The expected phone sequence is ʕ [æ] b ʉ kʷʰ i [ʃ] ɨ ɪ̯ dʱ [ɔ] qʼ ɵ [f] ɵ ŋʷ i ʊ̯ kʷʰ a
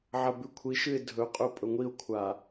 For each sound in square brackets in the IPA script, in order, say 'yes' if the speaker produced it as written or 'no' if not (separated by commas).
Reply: no, yes, no, no